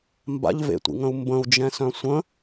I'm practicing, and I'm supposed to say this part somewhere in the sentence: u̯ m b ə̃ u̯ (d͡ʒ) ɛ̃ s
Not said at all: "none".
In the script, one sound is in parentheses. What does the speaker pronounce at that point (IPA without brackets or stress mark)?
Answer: d͡ʒ